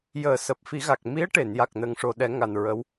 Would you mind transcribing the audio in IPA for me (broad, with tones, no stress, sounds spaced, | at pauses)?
j əː˨˩˦ s əː˨˩ p̚ f i˨˩˦ ɣ a˨˩ k̚ m i˧˥ ə̯ ʈ e˨˩˨ n j a˨˩ k̚ n ə˨˩˦ ŋ ʂ o˨˩ ɗ ɛ˨˩˦ ŋ a˨˩ n ɹ ə˧˥ w